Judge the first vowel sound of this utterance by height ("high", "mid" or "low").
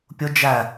high